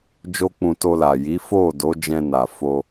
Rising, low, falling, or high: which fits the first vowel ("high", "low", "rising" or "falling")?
high